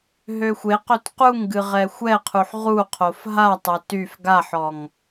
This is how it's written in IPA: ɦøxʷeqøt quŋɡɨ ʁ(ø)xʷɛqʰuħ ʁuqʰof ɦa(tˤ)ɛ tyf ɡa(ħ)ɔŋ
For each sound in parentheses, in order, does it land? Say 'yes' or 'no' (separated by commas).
no, yes, yes